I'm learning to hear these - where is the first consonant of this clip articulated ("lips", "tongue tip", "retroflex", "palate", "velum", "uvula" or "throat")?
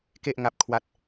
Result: velum